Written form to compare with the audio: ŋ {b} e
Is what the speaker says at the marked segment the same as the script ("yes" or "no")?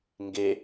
no